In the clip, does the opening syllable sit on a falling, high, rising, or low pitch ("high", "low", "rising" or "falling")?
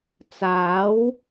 rising